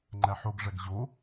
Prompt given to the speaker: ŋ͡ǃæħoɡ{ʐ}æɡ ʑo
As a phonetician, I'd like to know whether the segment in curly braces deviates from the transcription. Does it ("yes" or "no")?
no